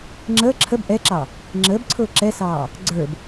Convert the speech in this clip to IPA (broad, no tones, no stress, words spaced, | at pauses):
ŋ͡ǁəː ǁʰəb ʔɛǁɑ | ŋ͡ǁəːbǀʰʊː ǁɛsɑː | ɡ͡ǀə˞b